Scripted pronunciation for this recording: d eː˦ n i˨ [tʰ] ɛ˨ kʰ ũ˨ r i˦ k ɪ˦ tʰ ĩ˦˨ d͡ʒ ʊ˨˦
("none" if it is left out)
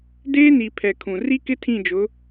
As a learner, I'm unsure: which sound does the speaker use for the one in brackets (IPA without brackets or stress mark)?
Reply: pʰ